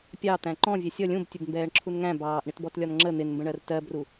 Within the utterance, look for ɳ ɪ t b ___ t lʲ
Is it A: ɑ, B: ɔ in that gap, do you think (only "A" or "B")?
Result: B